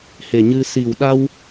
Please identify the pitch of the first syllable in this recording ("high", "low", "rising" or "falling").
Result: low